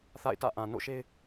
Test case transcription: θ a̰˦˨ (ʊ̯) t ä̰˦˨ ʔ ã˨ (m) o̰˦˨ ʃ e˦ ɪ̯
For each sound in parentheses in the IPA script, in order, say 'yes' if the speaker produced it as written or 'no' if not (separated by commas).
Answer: no, no